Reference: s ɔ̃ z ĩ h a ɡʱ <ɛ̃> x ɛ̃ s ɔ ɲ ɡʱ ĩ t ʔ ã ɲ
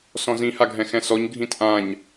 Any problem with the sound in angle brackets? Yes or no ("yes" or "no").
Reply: no